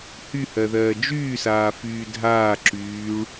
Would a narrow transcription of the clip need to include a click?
yes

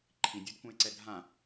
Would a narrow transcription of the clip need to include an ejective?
no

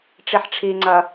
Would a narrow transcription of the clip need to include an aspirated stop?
yes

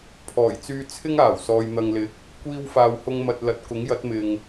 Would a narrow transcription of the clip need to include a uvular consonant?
no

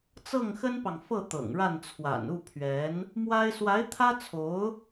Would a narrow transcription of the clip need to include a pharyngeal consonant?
no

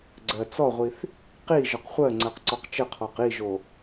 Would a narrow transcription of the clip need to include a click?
yes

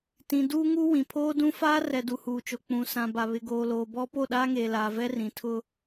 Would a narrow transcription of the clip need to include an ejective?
no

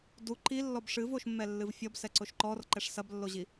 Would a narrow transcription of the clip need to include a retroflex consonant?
yes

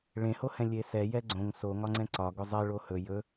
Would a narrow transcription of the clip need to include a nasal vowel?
yes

